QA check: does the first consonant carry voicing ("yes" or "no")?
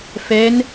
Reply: no